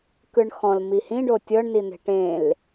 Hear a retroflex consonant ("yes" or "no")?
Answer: yes